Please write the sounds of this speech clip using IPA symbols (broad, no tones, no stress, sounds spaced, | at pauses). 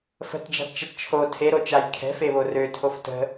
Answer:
f ə̤ t d͡ʒ a̤ t t͡ʃ ɐ t t͡ʃʰ o tʰ e ɾ o t͡ʃ a j kʰ ɛ̤ f e β o r ø tʰ o f t ə̤